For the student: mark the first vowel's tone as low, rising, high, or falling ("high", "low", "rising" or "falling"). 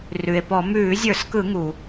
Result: low